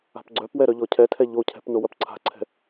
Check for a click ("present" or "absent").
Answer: present